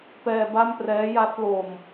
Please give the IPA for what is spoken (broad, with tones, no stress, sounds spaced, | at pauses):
p ɛː˧ b a˥˩ m p r ɛː˦˥ j a˦˥ t̚ l o˧ m